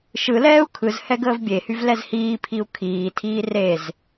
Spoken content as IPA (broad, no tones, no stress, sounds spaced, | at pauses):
ʃ ɯ l ɛː u̯ kʰ ɯ z h ɛ ɡ əː v bʲ e h y v l ɛ z h iː pʰ i u̯ kʰ iː tʰ iː r e z